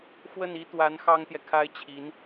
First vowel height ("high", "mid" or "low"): mid